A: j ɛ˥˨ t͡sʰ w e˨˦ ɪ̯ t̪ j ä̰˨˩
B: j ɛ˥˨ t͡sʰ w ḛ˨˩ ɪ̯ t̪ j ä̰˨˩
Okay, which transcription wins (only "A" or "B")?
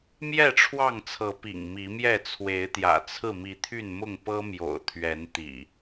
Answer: A